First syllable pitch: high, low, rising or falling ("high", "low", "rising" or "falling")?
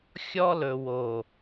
high